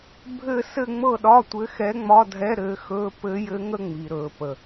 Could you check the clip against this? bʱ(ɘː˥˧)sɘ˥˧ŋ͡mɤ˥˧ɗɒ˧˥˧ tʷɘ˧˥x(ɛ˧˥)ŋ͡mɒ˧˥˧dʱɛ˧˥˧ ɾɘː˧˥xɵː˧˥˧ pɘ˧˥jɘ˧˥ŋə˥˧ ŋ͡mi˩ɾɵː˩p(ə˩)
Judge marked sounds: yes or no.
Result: yes, yes, yes

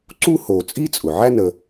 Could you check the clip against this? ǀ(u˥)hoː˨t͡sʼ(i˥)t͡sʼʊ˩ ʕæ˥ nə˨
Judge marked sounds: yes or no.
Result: yes, yes

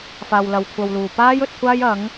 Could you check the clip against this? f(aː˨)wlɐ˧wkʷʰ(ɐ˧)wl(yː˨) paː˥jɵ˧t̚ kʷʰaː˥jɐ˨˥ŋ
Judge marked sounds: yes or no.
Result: no, yes, no

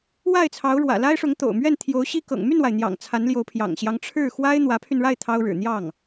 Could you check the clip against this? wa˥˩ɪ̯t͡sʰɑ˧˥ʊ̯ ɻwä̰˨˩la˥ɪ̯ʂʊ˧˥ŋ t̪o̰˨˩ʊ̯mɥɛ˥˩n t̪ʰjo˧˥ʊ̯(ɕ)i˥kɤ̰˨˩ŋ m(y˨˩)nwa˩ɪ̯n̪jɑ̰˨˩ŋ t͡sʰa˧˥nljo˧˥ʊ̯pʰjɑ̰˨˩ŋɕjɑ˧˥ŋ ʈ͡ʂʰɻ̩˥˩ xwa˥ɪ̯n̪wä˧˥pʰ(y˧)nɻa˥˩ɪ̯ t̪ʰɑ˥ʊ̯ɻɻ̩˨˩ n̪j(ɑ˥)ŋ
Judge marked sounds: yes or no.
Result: yes, no, yes, no

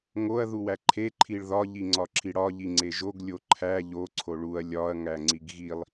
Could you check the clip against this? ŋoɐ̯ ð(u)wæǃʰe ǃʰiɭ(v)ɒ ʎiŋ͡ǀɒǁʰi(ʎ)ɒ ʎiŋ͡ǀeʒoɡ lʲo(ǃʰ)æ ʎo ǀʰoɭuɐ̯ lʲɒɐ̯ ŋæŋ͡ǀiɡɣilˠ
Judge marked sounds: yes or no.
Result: yes, no, no, yes

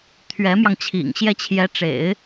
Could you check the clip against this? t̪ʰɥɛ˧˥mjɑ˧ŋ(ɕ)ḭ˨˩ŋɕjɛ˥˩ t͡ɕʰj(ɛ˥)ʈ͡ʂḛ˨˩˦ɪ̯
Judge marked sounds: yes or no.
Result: no, no

